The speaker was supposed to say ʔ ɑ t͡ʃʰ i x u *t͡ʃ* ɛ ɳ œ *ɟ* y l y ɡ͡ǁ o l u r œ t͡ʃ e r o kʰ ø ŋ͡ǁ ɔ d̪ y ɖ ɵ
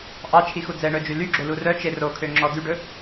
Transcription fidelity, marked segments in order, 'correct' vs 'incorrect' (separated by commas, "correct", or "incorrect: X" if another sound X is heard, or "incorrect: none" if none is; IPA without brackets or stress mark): incorrect: d͡z, incorrect: d͡ʒ